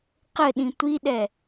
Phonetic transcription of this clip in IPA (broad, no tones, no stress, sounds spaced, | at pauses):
q ɘ ɗ ĩ tʷ i ɗ ɛ